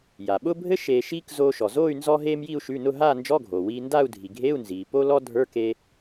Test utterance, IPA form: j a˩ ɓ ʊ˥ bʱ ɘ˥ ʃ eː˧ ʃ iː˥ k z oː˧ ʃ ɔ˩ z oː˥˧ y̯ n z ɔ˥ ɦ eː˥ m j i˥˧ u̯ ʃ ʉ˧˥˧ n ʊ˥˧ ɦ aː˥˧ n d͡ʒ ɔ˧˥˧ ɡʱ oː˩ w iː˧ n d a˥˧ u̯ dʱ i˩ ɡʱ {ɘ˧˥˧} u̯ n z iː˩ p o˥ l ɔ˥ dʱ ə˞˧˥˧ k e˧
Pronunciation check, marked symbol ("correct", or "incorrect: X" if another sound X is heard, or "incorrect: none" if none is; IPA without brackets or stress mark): incorrect: e˧˥˧